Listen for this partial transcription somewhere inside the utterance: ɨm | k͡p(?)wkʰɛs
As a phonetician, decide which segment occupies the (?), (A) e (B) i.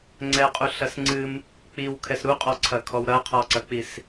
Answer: B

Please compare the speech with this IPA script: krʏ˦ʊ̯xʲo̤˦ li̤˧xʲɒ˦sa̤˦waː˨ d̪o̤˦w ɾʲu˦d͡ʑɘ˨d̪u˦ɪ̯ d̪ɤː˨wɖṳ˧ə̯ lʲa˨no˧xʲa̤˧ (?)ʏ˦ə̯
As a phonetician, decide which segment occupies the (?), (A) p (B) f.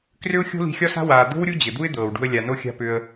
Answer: A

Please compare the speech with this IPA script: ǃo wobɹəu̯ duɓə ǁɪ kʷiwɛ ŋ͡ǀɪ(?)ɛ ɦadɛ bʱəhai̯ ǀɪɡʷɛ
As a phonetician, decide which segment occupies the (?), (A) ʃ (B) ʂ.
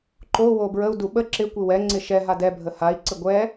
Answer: A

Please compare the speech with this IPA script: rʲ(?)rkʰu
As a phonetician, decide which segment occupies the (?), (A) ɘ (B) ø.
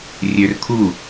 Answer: B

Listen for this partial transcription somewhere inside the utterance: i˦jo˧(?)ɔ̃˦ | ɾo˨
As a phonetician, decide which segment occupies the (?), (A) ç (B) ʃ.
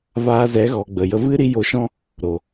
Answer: B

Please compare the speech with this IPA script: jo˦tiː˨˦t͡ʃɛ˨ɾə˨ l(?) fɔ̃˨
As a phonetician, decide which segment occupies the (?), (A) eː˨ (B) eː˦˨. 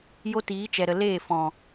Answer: B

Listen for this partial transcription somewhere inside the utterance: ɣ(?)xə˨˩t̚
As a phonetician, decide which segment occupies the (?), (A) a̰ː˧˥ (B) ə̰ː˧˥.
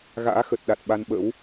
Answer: A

